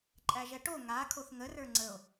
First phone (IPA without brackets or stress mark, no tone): ǃʼ